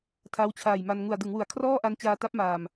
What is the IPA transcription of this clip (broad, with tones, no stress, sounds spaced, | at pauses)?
tʰ a˦˥ w t͡ɕʰ aː˨˩ j m a˧ n ŋ u˨˩ a̯ d ɯ˩˦ ŋ w u˩˦ a̯ kʰ r ɔː˥˩ ʔ a˧ n t͡ɕ aː˧ t a˦˥ p̚ m aː˨˩ m